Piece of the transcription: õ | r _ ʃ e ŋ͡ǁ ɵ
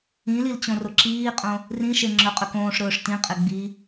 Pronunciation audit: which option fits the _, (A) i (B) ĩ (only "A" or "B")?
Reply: B